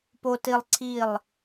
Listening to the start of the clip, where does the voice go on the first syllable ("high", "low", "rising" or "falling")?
high